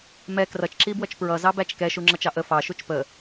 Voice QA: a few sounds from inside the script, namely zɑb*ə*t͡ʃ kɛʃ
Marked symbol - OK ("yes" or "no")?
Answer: no